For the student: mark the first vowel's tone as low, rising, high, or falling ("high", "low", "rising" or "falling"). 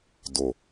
low